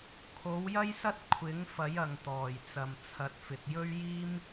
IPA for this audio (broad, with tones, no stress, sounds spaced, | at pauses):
kʰ o˨˥ w j ɐ˥ j s ɐ˥ t̚ kʷʰ ɪ˨˥ ŋ f ɐ˨˥ j ɐ˨ ŋ t̪ ɔː˨˩ j t͡s ɐ˨ m t͡sʰ ɐ˨˥ t̚ f ɪ˨ k̚ j ɵ˥ ɥ j iː˥ m